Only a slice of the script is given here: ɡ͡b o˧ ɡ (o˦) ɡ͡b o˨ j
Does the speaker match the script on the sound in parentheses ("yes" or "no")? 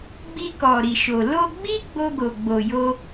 no